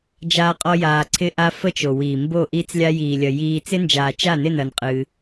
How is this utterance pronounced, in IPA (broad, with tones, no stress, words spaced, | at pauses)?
d͡ʒaː˦qʼɔ˦ jaː˧ǀʰɪ˦ʔa˦ fə˦˨t͡ʃo˨wiː˨ mbo˦˨ ʔiː˧t͡slʲa˧jiː˨lʲɐ˨ jiː˧ t͡sɪ˦nd͡ʒaː˨t͡ʃa˦˨nɪ˦˨n ɐ˧nqʼɨː˧